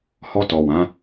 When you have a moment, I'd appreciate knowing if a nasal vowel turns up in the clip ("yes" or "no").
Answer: yes